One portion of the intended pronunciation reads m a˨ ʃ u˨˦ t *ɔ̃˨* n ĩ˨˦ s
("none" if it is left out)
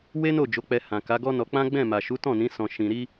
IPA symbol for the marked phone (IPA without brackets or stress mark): ɔ̃˦˨